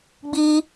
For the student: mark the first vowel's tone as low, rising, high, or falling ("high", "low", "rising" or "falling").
high